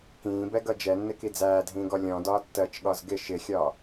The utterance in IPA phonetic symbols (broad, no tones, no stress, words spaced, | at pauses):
kĩːbɛɡʌ d͡ʒɛnːɪki d͡zæːdʱĩːɡɔ lʲɔ̃dɒː tːɜt͡ʃɠɒz ɡɪ ʃɪxʲɒ